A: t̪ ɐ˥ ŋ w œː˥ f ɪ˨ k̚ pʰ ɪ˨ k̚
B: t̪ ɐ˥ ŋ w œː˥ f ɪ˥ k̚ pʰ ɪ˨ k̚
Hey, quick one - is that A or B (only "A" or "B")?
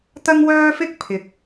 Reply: B